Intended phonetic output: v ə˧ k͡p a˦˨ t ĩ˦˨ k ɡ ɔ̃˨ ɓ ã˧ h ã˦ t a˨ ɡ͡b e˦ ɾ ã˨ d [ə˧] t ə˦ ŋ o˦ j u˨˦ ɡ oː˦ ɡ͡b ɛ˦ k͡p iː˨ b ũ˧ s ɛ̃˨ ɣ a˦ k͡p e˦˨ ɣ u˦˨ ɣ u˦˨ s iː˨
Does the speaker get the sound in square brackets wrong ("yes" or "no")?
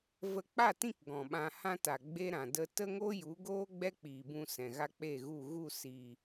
no